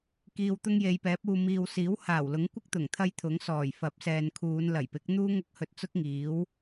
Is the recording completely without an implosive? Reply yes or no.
yes